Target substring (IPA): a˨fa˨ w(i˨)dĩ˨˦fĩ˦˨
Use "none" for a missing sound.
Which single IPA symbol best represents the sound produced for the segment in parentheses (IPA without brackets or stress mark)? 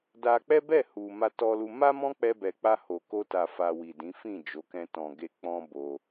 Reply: i˨